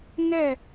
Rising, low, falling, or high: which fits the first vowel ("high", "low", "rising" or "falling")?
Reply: falling